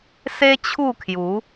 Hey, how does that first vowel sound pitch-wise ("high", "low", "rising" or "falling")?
high